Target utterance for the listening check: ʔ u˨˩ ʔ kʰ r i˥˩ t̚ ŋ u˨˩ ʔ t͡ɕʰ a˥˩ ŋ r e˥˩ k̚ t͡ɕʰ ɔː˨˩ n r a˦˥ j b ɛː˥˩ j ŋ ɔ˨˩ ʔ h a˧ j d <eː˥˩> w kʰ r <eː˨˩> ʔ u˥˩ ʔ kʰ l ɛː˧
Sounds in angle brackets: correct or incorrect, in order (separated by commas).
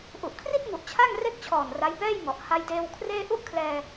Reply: incorrect, incorrect